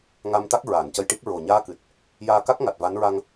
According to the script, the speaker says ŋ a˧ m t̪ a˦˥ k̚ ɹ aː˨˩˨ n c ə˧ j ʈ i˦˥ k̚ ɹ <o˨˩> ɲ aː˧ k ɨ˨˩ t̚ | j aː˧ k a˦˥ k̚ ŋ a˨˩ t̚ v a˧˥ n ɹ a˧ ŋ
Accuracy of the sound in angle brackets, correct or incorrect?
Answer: correct